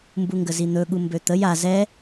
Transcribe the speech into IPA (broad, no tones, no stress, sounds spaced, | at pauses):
m b u ŋ ɡ ə z i n̪ ɵ ɠ u m b ø t̪ ə j a z ɛ